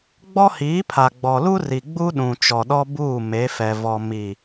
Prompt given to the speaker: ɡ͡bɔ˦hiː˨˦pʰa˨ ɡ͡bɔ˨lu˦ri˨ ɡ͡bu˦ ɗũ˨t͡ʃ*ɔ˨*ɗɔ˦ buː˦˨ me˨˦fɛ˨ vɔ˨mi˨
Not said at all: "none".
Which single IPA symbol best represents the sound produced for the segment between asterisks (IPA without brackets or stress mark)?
ɔ˨